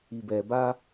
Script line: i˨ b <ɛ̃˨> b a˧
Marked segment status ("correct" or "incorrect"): incorrect